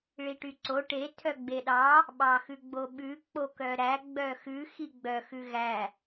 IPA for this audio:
ɭiʈyǀo ʈe tʰœɡ͡beɗɑ | ɓɑxʉɡ͡boɓʉ k͡pokœɾæ ɡ͡bœxʉ xiɡ͡bœ xʉɣæ

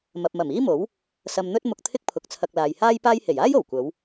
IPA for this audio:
mɐ˨p̚mɐ˨˩miː˥mo˨˥w | sɐ˧mn̪ɵ˥t̚ mʊ˧k̚t̪ʰɪ˥k̚pʰʊ˨˥k̚t͡sʰɐ˧k̚ laː˨jhaː˥jpaː˥j he˨˩jaː˥jo˨˩w kʷɐ˨˧w

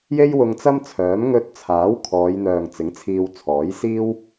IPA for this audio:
je˥jwʊ˧ŋt͡sɐ˥mt͡sʰœː˨˥m ŋɵ˧t̚t͡sʰaː˨˥w kʰɔː˨˧jn̪œː˨ŋ t͡sɪ˨˥ŋt͡sʰiː˧wt͡sʰɔː˨˥j siː˥w

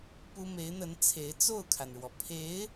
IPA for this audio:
pu˥ me˧˥ɪ̯n̪ə˧˥n t͡sʰe˧˥ɪ̯ t͡so˥˩ʊ̯kʰa˩nɻwɔ˩ pʰe˧˥ɪ̯

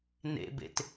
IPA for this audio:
nḛbḛt

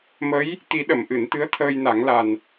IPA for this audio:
mə˧˥j | t̪i˨˩˦ɗə˨˩˨mʔɨ˨˩˨nt̪ɨ˧˥ə̯ t̪ʰəː˧jna˨˩˦ŋla˨˩n

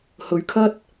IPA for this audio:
hɵ˨˧ɥ kʰɐ˥t̚

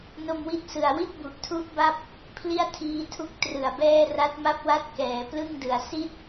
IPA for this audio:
no˧mwi˦˥t̚ sɯ˨˩a̯ wi˥˩t̚bu˨˩ʔtʰu˦˥ʔ ba˥˩p̚ | pʰli˥˩a̯tʰiː˦˥tʰu˥˩k̚ trɯ˨˩a̯bɛː˥˩ ra˦˥t̚ma˥˩p̚wa˥˩t̚ kɛː˩˦ plɯ˥˩ŋdɯ˨˩a̯si˥˩t̚

